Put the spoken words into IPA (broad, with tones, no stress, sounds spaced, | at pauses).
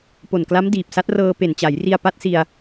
p o˨˩ n k l a˦˥ m d iː˨˩ p̚ s a˦˥ t̚ r ɤː˧ p e˨˩ n t͡ɕ a˩˦ j r i˧ a̯ p a˦˥ t̚ s i˧ a̯